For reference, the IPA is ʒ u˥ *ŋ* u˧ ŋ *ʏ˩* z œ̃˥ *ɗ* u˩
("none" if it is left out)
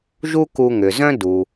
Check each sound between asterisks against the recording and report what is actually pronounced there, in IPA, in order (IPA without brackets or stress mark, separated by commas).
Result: k, ʏ˩, d